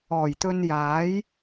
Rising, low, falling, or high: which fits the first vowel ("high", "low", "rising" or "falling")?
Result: low